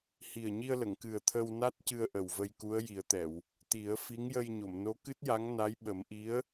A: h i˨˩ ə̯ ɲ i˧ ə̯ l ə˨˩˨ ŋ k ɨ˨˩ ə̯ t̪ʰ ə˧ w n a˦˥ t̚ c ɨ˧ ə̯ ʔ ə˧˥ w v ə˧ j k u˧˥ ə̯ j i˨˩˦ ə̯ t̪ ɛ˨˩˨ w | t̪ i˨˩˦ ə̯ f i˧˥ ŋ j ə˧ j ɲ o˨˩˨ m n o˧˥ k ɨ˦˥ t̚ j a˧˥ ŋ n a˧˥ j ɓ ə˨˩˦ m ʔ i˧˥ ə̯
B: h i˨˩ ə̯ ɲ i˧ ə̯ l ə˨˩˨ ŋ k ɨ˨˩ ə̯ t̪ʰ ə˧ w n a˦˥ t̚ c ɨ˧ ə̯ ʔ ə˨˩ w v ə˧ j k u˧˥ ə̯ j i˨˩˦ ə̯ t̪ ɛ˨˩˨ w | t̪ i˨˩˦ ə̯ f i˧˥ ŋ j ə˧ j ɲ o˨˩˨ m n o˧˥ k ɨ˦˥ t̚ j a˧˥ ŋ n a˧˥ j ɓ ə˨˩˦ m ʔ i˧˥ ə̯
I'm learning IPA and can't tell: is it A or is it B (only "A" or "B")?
B